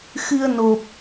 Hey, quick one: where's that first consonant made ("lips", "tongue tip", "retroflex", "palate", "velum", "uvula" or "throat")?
velum